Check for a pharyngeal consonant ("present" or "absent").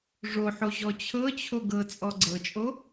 present